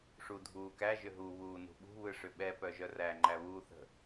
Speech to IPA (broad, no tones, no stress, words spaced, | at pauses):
ʂudʱuːkæ ʒʏɦu βuːnṳɓṳ βɯʂʏɓɛ pœʒœræ ŋ͡ǃæβuːθə̤